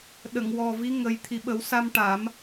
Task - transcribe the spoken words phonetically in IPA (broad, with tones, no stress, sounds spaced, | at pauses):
ɗ ə˨˩˨ ŋ w ɔ˨˩ v i˧˥ ŋ ə˨˩ j t̪ʰ i˨˩ ɓ ə˨˩˦ w s a˧ m ʈ a˨˩˦ m